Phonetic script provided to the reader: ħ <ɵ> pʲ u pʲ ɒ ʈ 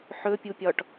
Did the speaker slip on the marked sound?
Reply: no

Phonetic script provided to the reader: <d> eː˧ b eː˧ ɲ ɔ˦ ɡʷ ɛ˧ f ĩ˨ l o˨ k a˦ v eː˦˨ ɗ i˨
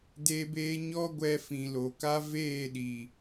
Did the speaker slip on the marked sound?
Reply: no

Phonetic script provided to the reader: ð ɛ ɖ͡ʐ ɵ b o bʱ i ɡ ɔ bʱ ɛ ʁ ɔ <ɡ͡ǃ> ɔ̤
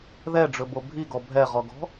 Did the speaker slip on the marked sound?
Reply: yes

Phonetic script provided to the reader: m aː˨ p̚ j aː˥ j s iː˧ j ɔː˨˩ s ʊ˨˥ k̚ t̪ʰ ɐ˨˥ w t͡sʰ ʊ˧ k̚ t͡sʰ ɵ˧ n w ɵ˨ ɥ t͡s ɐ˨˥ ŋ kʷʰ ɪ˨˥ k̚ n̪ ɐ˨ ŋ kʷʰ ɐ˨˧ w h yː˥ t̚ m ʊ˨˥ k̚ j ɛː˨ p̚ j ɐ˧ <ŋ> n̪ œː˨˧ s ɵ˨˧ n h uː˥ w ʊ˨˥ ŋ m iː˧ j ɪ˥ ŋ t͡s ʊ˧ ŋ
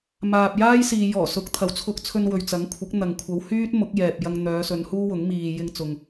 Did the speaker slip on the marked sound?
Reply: no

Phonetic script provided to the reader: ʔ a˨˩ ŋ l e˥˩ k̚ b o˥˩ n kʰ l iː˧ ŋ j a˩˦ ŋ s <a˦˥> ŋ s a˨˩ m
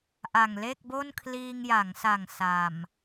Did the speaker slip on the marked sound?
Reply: yes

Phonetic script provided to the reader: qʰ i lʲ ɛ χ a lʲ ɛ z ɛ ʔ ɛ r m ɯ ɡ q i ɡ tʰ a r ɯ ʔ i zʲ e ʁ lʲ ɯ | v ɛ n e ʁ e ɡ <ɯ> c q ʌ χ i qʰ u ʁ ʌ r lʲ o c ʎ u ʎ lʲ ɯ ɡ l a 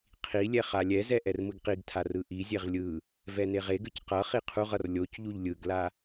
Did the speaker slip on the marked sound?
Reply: no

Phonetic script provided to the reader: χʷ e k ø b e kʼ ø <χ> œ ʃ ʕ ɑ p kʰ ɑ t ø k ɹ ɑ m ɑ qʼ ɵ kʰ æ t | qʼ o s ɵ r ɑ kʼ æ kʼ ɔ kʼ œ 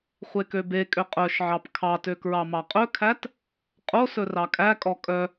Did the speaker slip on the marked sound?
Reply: yes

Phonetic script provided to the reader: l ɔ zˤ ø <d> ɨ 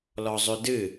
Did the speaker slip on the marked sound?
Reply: no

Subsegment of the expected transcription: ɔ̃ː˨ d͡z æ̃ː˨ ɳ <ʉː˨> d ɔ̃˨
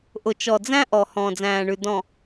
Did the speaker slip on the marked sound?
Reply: yes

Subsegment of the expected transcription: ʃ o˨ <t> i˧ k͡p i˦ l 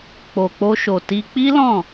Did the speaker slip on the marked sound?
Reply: no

